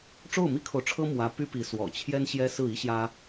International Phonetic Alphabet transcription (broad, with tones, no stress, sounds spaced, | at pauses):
ʈ͡ʂ o˥˩ ʊ̯ m i˥ kʰ o˨ ʊ̯ ʈ͡ʂʰ ɤ˥ m w ä˧˥ p y˥ p i˧˥ s w ɔ̰˨˩ t͡ɕʰ j ɛ˥ n ɕ j ɛ˥ s ɹ̩˥˩ i˥ ɕ j ä˥